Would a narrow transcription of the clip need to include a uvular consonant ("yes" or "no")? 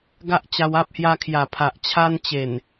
no